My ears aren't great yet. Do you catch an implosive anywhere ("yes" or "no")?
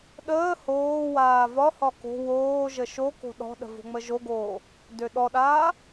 yes